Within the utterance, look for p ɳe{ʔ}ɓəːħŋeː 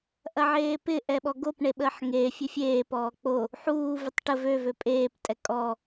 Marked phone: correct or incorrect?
incorrect: none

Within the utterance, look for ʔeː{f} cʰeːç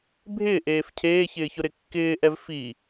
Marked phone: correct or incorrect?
correct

